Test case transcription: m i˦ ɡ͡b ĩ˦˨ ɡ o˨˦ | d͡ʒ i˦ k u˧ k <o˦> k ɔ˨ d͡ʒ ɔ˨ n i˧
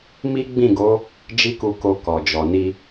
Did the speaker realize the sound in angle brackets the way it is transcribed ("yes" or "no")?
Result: no